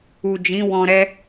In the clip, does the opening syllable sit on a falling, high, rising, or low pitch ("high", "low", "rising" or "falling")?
low